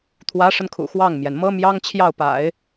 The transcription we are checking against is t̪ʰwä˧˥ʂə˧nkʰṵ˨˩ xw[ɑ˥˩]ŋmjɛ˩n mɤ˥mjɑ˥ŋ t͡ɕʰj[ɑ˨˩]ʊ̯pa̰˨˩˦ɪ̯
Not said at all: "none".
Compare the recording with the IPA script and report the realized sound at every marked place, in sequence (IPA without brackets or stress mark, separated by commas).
ɑ˥˩, ɑ˥˩